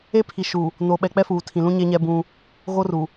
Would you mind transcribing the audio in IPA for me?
e˦ pʰ i˨ ʃ uː˨ | n o˨ ɓ ɛ˨ k͡p ɛ˦ f uː˨ tʰ ĩ˨ l ũ˦ ɲ e˦ ɲ ɛ˦ b ũ˦ | ɣ o˦ r u˨

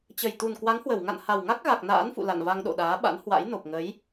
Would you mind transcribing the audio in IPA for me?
t͡ɕ ə˨˩ j t̪ u˨˩ n k w a˨˦ ŋ h w ə˧˩ w ŋ a̰˧˨ n h a˨˩ w ŋ a˦˥ k̚ ɣ a˨˩ k̚ n a̰ː˧˥ n f ṵ˧˨ l a̰˧˨ n v a˧ ŋ ɗ o̰˧˨ ɗ aː˨˦ ɓ a̰˧˥ n h w a̰˧˥ j n o˨˩ p̚ ŋ ə˨˦ j

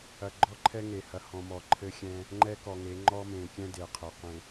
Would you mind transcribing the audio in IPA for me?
ɐ˨ ɡ͡ǃ ɔ˦ ǃʰ ɛ˦ ŋ e˨ h ɐ˨ h ɔ̃˨ m ɔ˨ ǃʰ ɘ˦ xʲ ɛ̃˦ | ŋ͡ǃ ɛ˦ k ɔ˨ ŋ e˨˦ ŋ͡ǃ ɔ˦ m ẽ˨ kʲ ɛ̃˦ d e˨ qʰ ɛ˨ qʷ ẽ˨

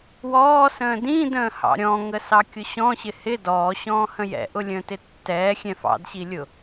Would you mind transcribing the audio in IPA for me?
w ɔː s ə̃ː d ĩ d ə̃ː h ɑ̰ ɾʲ ɔ̃ ŋ ə s ɑ kʲ ʊ ɕ ɔ̃ ɕ ɪ h ɪ d ɔː ɕ ɔ̃ː h ə̃ j ɛ̰ ʔ ʊ lʲ ə̃ː t ɪ tː ɛː xʲ ɛ̃ f ɑ̰ d ɕ i lʲ ʊ

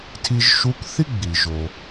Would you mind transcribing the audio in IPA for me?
tʰ i˧ ʒ ʃ u˧˥ k θ i˥ ɡ͡b i˩ ʒ o˩

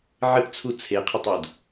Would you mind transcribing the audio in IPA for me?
ʕ ɪ p t͡sʰ u t͡sʰ e qʰ ɪ tˤ u d

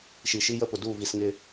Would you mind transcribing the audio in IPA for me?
ʃ i˨ ʃ i˦ j ə˦ p ʊ˨ d u˦˨ v i˨ s ŋ ɪ˦

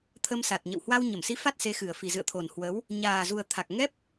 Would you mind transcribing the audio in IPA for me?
t̪ʰ ə˧ m s a˨˩ t̚ ɲ ə̰˧˨ w h w a˧ w ɲ ə˧˩ m s i˨˦ f a˦˥ t̚ s e˨˦ x ɨ˨˩ ə̯ f i˨˩ z ɨ̰˧˨ ə̯ t̪ʰ o˨˩ n h w ə˨˦ w | ɲ aː˨˩ z u˨˩ ə̯ t̪ʰ a˨˩ k̚ ŋ ɛ˦˥ p̚

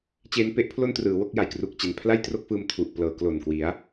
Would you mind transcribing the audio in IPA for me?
t͡ɕ eː˦˥ n p e˥˩ ʔ pʰ l o˥˩ n t r ɯː˩˦ w o˥˩ k̚ j a˨˩ j k r u˨˩ k̚ t͡ɕ e˨˩ n pʰ l a˥˩ j t r o˥˩ k̚ f ɯː˧ m tʰ u˨˩ ʔ p l ɤː˩˦ k l o˨˩ n k w i˩˦ a̯

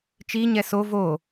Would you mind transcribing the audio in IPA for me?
t͡ʃ i ɲ ɛ s o v o

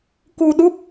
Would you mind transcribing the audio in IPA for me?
k u˧ ɗ u˦˥ p̚

